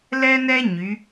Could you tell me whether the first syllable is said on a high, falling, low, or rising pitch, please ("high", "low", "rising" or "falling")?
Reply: high